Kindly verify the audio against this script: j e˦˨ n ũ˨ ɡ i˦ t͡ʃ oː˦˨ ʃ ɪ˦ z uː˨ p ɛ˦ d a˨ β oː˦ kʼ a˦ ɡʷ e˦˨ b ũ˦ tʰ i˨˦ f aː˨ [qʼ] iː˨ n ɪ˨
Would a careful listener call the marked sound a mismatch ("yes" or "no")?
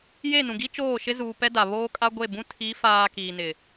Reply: yes